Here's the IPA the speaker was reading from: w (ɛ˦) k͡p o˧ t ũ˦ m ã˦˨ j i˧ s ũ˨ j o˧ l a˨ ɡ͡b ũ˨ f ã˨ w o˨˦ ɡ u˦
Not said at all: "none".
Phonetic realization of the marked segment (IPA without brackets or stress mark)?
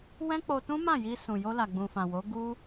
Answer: ɛ̃˦